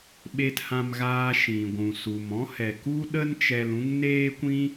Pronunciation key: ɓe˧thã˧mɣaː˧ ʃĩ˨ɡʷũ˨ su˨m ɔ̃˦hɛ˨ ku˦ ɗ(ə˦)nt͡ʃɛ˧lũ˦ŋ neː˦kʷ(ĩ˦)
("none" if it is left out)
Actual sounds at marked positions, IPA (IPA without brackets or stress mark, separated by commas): ə˦, ĩ˦